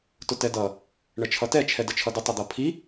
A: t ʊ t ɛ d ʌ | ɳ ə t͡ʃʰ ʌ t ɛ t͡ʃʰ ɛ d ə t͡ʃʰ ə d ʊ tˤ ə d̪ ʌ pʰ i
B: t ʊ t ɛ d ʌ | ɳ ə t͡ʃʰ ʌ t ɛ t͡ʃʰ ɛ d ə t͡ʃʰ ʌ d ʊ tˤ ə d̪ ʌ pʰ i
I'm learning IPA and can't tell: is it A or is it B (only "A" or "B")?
B